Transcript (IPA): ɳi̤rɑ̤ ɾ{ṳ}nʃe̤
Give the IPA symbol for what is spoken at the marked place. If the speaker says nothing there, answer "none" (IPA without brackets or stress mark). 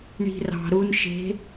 u